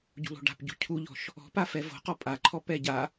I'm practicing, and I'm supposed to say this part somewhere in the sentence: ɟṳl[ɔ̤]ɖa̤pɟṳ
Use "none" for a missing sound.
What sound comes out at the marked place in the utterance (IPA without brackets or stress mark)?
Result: o̤